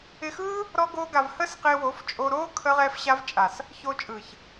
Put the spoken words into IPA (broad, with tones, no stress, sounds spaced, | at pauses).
ɪ˧ x ɯː˦ | ɾ ɔ˦ ɡ oː˦ ɡ a˧ v h əː˦ s q ɪː˧ w o˨˦ f t͡ʃʼ o˧ ɾ oː˦ kʰ ə˦ ʁ ɛ˦ f ɕ a˦ v t͡ʃʼ a˨ s | ç oː˧ t͡ʃʼ ɯ˨ ç